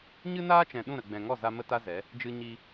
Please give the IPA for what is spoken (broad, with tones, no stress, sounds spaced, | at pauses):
ɲ ɨ˦ n aː˦ t͡ʃ ɛ̃˨ ɗ ũ˦˨ ɾ ə˨ ɡ͡b ɛ̃˨ ŋ ɔ˦˨ z a˧ m ə˦ t a˦ z ɛ˨˦ | d͡ʒ ɨ˧ ɲ i˧